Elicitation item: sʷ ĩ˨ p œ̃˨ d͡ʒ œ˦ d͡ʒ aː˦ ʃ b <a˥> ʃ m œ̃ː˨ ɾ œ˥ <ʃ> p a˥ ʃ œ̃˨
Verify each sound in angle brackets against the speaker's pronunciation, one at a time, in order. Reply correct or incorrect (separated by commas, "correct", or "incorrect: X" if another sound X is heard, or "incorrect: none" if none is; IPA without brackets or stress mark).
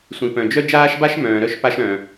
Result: incorrect: a˦, correct